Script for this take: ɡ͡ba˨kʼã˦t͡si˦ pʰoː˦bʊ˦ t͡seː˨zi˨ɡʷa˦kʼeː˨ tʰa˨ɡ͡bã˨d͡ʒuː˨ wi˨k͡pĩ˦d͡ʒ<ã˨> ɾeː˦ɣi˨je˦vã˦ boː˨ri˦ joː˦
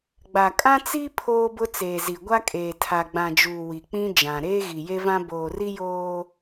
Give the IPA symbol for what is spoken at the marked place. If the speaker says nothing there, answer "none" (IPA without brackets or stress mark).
ã˨